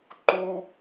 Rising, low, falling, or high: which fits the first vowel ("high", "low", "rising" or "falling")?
high